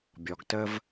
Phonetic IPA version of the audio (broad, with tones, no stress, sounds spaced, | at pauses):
bʲ ɔ˨ ɡ t ə˦ v